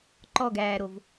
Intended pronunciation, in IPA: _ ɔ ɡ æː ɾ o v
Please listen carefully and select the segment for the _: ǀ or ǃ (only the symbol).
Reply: ǃ